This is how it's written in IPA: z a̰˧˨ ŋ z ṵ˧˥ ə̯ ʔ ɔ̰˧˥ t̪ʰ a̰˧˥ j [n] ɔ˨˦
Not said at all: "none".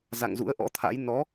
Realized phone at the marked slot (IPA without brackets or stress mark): n